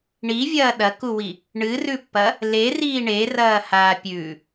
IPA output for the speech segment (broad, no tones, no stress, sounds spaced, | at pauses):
ɳ i vʲ ɐː ɗ ɐ k u w i | ɳ ɨ r ʉ pː ɐ | l e r iː ɳ e r ɐː h aː pʲ ʉ